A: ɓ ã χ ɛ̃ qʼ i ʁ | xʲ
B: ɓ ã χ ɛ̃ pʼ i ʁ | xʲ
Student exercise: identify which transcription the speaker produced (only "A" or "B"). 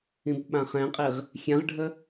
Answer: A